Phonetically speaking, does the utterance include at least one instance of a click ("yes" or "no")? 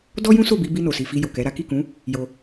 no